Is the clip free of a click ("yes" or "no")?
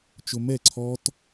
no